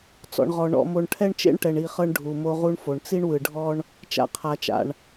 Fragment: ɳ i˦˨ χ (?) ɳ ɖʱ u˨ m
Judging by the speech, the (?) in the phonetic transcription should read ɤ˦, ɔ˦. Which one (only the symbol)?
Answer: ɤ˦